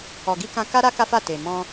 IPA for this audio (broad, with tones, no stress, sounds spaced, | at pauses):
ɔ˨ ɡ i˧ k ã˧ k a˦ ɾ a˦ k a˦ f a˦˨ t e˨ m ɔ̃˧